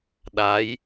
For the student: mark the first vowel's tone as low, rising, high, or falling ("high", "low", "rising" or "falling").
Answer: rising